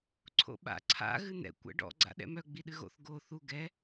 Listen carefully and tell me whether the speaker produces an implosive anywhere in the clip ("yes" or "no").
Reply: yes